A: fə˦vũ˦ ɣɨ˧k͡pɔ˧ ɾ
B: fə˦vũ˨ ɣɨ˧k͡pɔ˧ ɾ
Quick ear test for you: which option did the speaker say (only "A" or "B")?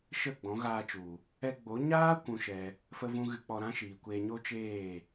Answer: A